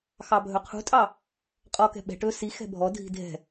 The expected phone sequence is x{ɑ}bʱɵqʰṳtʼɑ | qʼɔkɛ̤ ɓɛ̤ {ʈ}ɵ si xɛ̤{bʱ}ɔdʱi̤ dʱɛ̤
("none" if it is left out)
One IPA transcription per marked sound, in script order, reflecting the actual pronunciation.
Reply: ɑ, ʈ, bʱ

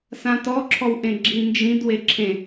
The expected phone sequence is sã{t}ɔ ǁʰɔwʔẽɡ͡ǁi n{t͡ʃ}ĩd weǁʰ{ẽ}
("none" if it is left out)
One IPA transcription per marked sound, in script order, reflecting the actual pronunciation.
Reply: t, d͡ʒ, ẽ

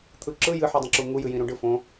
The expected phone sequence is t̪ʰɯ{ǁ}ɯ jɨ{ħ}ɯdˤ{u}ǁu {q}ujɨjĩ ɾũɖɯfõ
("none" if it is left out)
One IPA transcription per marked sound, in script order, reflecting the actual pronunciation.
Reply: ǁ, ħ, ũ, ŋ

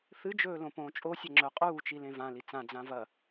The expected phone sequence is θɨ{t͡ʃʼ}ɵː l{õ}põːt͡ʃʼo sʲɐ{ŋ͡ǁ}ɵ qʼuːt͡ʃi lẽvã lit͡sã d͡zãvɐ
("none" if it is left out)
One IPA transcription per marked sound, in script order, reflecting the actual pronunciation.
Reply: d͡ʒ, õ, ŋ͡ǁ

